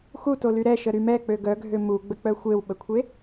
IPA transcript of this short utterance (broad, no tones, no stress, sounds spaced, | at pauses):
x u t o l y ɾ ɛ ʃ ə ɾ y m ɛ k͡p ø ɡ œ ɡʱ ø m u ɡ͡b ə k͡p œ xʷ e w ɓ ə kʷʰ e